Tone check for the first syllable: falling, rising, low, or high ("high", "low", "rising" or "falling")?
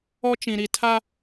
high